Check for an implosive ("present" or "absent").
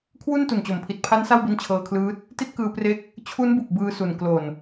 absent